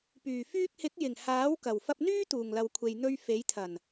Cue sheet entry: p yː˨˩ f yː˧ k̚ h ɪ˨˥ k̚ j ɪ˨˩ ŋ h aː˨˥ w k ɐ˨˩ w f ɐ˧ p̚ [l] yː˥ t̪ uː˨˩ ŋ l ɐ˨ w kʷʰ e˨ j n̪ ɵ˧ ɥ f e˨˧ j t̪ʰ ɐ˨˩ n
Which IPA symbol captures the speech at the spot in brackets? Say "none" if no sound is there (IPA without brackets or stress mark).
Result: n̪